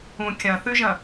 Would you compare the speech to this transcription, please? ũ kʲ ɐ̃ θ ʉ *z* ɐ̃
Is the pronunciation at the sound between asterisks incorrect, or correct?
incorrect: ʒ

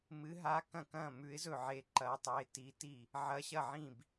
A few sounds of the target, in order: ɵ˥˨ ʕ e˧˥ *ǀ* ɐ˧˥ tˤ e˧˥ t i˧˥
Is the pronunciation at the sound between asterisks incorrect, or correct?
incorrect: ǃ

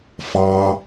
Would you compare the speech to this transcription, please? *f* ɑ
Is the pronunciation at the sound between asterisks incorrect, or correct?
correct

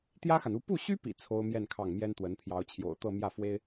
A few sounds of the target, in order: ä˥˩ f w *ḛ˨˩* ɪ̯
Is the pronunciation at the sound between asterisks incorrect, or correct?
incorrect: e˥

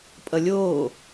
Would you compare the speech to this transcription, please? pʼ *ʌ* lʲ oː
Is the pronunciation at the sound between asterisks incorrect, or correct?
correct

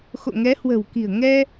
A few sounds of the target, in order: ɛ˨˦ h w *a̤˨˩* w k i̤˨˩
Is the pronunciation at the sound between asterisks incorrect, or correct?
incorrect: ə̤˨˩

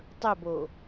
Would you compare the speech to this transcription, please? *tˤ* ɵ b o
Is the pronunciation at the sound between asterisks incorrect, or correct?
correct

